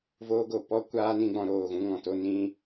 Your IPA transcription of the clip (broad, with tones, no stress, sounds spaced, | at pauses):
v oː˧ ɡ o˨ p ɔ˦ kʷ aː˦ n ĩ˧ ɡ͡b ɔ̃˧ ɾ oː˦˨ ɣ ũ˦ ŋ ɔ̃˧ t o˧ n ĩ˧